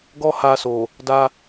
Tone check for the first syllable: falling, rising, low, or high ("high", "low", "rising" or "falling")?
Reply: high